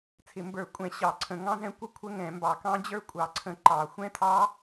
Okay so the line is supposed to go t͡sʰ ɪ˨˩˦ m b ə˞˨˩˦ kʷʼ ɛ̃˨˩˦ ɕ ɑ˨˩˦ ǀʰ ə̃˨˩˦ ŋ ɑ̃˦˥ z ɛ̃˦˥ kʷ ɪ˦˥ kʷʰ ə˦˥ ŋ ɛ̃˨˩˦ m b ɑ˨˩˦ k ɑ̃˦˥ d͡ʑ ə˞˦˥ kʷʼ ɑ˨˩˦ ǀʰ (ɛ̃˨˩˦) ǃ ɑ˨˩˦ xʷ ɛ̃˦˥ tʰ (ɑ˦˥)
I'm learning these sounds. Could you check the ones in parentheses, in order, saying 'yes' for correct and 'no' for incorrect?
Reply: no, yes

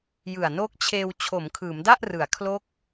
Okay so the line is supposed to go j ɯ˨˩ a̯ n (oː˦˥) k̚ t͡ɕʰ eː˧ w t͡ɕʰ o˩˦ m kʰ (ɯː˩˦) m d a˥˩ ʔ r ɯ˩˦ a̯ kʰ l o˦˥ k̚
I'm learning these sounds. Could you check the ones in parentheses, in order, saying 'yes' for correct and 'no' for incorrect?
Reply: yes, yes

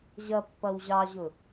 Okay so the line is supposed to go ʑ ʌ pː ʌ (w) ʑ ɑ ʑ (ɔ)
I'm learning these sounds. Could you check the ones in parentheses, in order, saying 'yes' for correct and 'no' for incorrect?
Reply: yes, no

